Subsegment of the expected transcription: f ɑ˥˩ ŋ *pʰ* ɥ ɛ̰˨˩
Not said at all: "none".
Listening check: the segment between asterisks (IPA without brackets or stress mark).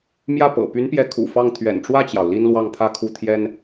t̪ʰ